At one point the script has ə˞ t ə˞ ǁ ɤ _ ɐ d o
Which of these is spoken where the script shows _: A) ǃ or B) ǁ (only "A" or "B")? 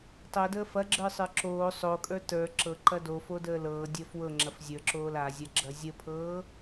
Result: A